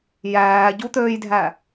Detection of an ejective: absent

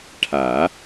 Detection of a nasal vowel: absent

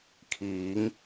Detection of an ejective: absent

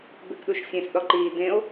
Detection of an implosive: present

